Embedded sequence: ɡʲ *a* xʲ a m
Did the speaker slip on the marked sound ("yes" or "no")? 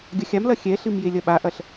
yes